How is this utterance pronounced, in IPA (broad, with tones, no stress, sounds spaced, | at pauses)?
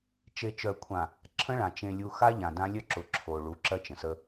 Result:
t͡ʃ e˨ t͡ʃ œ˨ kʷʰ ã˨ | ǁʰ ə̃˦ ɭ ã˨ t͡ʃ ẽ˨ lʲ u˨ x a˦ ʎ ã˨ d ã˦ lʲ œ˦ ǁ ʊ˨ ǁʰ o˨ ɭ u˨˦ ǁ ɜ˦ t͡ʃ ə̃˨ s ə˦